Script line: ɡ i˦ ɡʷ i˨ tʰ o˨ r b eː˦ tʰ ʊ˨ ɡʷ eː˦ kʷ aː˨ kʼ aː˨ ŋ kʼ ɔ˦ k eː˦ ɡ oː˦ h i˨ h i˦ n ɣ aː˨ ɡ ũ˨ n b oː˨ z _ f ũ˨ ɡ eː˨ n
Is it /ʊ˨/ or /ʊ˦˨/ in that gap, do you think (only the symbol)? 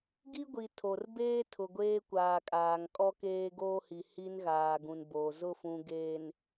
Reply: ʊ˦˨